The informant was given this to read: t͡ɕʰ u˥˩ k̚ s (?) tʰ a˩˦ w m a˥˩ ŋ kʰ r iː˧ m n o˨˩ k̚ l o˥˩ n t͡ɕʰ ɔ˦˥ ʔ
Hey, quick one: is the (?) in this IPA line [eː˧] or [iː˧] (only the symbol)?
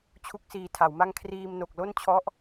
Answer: iː˧